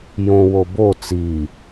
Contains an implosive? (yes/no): no